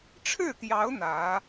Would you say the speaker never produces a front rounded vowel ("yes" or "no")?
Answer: yes